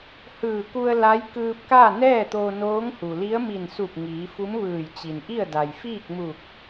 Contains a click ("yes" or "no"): no